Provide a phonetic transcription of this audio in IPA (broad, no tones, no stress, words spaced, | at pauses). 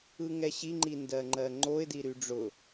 ɯŋɛɕiŋ͡ǃi ndɜŋ͡ǃɜŋ͡ǃoɪ̯di ɾyɖ͡ʐʊ